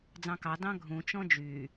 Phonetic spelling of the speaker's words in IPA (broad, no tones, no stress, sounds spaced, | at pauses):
d͡z ɑ̃ k ɑ d ɑ̃ ɡʱ ũ t͡ʃ ɔ̃ d͡ʒ yː